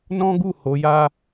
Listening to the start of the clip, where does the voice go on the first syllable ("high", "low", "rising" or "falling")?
high